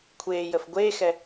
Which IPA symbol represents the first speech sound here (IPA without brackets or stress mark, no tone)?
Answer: kʷʰ